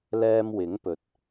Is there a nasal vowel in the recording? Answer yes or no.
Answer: no